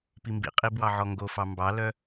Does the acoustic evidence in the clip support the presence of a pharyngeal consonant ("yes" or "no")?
yes